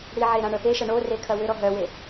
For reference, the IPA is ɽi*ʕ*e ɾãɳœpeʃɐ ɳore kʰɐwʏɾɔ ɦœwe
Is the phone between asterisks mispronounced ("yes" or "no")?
no